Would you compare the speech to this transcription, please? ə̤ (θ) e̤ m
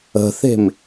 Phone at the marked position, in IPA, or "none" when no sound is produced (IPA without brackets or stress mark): θ